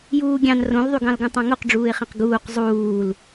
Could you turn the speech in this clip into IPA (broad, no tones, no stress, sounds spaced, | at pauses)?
j uː ɡʲ ɑ̃ n r õ l ðˤ y ɡ ɑ̃ l ɡ ũ tˤ ɑ̃ ŋ o q ɖ͡ʐ uː ɪ̯ χ ẽ q ɡ uː q zˤ uː l